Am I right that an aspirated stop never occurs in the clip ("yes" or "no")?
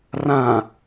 yes